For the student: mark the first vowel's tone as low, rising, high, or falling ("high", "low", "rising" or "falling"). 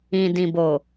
low